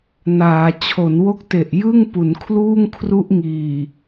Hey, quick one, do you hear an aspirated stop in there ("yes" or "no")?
yes